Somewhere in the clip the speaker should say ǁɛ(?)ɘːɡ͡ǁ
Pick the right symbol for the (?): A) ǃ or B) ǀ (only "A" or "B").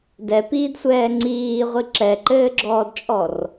A